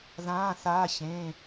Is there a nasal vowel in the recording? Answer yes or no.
yes